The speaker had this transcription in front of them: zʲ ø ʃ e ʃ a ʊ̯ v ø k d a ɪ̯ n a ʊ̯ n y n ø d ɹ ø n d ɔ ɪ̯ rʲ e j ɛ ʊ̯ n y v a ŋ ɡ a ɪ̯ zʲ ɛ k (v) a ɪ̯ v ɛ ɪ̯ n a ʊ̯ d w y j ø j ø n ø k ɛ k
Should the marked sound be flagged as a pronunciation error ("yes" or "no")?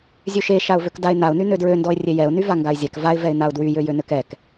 no